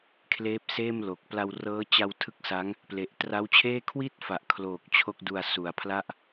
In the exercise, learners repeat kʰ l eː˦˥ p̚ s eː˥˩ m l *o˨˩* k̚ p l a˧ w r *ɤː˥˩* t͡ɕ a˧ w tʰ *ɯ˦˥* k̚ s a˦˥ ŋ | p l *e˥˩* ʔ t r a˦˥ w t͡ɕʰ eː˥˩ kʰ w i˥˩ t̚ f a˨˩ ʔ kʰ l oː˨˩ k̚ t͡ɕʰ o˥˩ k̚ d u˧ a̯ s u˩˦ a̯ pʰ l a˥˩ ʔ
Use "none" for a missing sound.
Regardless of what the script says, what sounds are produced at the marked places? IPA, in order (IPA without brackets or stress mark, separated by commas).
o˨˩, ɤː˦˥, ɯ˦˥, e˨˩